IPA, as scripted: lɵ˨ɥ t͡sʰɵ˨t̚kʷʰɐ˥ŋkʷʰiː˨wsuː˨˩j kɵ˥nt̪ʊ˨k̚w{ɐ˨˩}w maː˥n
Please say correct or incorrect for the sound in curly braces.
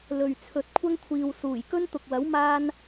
incorrect